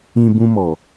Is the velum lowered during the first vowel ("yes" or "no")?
yes